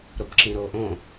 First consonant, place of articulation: alveolar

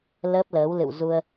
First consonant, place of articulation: alveolar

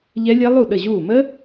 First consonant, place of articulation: palatal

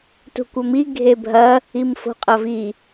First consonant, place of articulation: alveolar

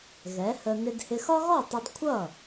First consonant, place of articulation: velar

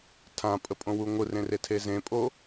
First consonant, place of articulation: alveolar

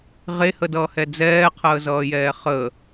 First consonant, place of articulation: uvular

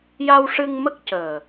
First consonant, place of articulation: palatal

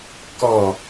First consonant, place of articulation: velar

